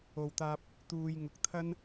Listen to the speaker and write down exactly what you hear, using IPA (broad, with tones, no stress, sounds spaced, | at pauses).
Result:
o˨ w t̪ aː˧ p̚ | t̪ uː˧ j ŋ ʊ˧ k̚ t̪ʰ ɐ˥ n